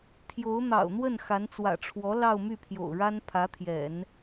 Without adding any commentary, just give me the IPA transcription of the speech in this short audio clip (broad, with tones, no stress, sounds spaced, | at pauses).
t̪ʰ j o˧˥ ʊ̯ n̪ ɑ̰˨˩ ʊ̯ n̪ w ə˥˩ n x a˧˥ n t͡s w ä̰˨˩ ʈ͡ʂʰ w ɔ˧˥ l ɑ˥˧ ʊ̯ m y˥˩ pʰ j o̰˨˩ ʊ̯ ɻ a˥ n pʰ ä˧˥ t̪ʰ j ɛ̰˨˩˦ n